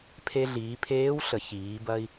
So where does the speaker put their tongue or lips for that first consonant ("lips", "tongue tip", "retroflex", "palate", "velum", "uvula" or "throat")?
lips